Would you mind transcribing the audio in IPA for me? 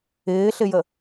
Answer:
ɪː ɬ ɪ j ə

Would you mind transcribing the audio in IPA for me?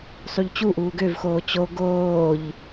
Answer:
sˤ u ʎ t͡ɕ u ʔ uː ɡ ø v x oː t͡ɕ o ɡ oː ʎ

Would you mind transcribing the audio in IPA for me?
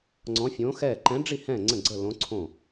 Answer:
ŋ͡ǀ ɔ̃˧˥ fʲ õː˧˥ x ɛ˥˨ ǃ ɛ̃˧˥ ɖ͡ʐ i˥˨ h ɛ̃˥˨ ŋ͡ǀ ə̃˥˨ ɡ͡ǀ ə˥˨ l õ˧˥ ǀʰ õ˥˨

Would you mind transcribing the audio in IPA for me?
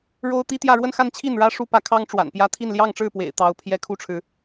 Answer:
ɻ o˥ ʊ̯ t̪ i˥ t̪ j ä˥˧ ɻ w ə˥˧ n x a˥˧ n t͡ɕʰ i˥˩ n ɻ ä˥ ʂ u˥ p ä˧˥ kʰ ɑ˥ ŋ ʈ͡ʂ w a̰˨˩ n p j ä˥ t̪ʰ i˥˧ n l j ɑ˥˧ ŋ ʈ͡ʂ ɻ̩˥˩ p w ḛ˨˩ ɪ̯ t̪ ɑ˧˥ ʊ̯ pʰ j ɛ˥ kʰ u˥˩ ʈ͡ʂʰ ɻ̩˩

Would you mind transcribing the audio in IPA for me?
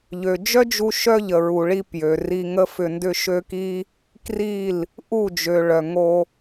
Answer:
ʎ ø˨ d͡ʒ œ˦ d͡ʒ u˧ ʃ œ˦ ʎ ə˨ ɹ u˨ ɭ i˧ p j ø˨ r i˧ ŋ ə˦ f ʏ˧ n d ʏ˦ ʃ ø˦ k i˦ | k r i˦˨ l | ʔ u˦˨ d͡ʒ ø˨ ɭ œ˨ ŋ o˧

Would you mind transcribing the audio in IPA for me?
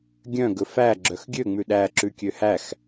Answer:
ɡʲ œ̃ ɡ ɵ f æ ɡ͡ǁ œ x ɡʲ ø ŋ͡m ʉ ɗ æ ǁ ʉ kʲ ø h æ x

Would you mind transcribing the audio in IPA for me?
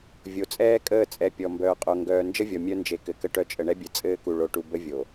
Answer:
vʲ o˨ t͡sʼ ɛː˦ kʼ əː˦˨ t͡sʼ ɛ˨ pʲ ɔ˨ m b œː˨ qʼ o˨ ŋ ɡ œː˨ n d͡ʒ ə˦ vʲ ɔ˨ mʲ œ˦ n d͡ʒ e˨ k ɘ˨ k ə˦ ʈ œ˦ t͡ʃʼ ə˨ ɳ ɛ˦ bʲ ɘ˨ t͡sʼ ɘː˦ k u˨ ɭ o˨ ʈ u˨ b ə˦ vʲ o˨

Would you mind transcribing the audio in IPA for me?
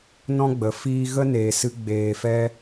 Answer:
n ɔ̃˦ ɡ͡b ə˨ f iː˦ ɣ ə˦ n eː˨ s ɨ˧ ɡ͡b eː˨ f ɛ˧

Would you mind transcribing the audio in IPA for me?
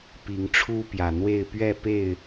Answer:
p i˨˦ ŋ ʈ͡ʂʰ u˦ p j ä˨˩ n̪ w e˥˨ ɪ̯ p ɥ ɛ˥˨ p e˥˨ ɪ̯

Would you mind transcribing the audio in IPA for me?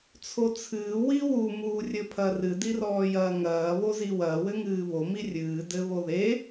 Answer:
t͡sʰ o t͡sʰ ɨː w i w u m uː rʲ ɘ pʰ ɐ r ɨ d i r ɔː j ɐː ŋ ɐː β o z i w ɐː w ɘ ŋ ɨː β o m i rʲ ɨː d ɘ β o ð e

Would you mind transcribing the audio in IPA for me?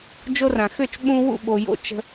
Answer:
d͡ʒ o˧ r ã˨ x ø˦˨ t͡ʃ ɓ ũ˧ w ṵ˦˨ ɓ o˨ j o̰˧ t͡ʃ ə̤˧

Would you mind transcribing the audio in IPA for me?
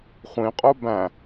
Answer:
χʷ ĩ qʼ o b æ̃

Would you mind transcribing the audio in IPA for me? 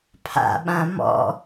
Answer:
pʰ a̰ ɓ ã m ɔ̰

